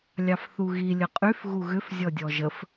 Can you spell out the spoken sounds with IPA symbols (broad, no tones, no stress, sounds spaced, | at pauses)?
lʲ ɑ f θ u ɣ i lʲ ə qʼ y f ɣ u ɣ ʏ f zʲ ɔ dʲ ɔ ʒ ə f